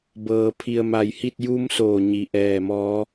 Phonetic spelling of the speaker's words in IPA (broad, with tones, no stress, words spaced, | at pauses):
bɤː˩ pʰi˩ə̯ ma˧˩jhi˥˨t̚ ju˧˥msoː˧˩ ɲi˩ʔɛː˧˩mɔː˧˥